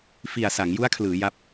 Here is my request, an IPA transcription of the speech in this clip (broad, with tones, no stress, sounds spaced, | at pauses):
f i˨˩ a̯ s a˩˦ ŋ j u˦˥ a̯ kʰ l ɯː˩˦ j a˦˥ p̚